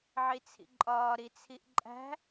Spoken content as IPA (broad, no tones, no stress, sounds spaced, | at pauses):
ʕ i t͡sʰ ḭ ǃʼ ɒː ɾ i t͡sʰ i ʔ ǃʼ æ̤